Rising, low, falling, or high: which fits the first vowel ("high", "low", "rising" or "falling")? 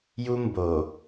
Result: high